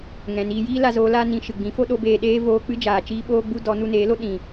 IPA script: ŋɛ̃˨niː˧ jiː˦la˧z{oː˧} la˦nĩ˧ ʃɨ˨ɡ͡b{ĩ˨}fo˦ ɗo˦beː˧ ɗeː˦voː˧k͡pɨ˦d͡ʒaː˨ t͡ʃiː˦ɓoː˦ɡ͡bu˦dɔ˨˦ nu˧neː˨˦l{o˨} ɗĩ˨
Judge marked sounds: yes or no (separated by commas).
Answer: yes, no, no